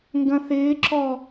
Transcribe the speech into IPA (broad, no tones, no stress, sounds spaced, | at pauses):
ŋ ɡ ɐ̃ θ ɪː ǁ ɔ